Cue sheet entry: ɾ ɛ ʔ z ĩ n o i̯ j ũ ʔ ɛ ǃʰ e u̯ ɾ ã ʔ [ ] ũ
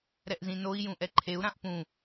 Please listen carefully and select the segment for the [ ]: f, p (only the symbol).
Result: p